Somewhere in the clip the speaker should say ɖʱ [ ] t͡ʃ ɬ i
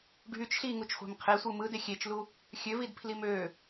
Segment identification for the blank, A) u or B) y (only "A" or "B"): B